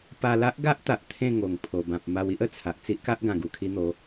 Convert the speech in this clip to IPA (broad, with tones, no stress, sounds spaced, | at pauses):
p a˧ l a˦ ʔ ɡ a˦ ʔ t̪ a˨ ʔ t̪ʰ ẽ˥˧ ŋ o˨˩ ŋ pʰ o˨˩ b ã˨ p̚ m a˧ w i˦ ʔ ə˨˩ t͡sʰ a˨ ʔ t͡s i˦ ʔ k a˦ ʔ ɡ ã˨˩ ɡ u˨˩ kʰ i˧ n̪ o˨˦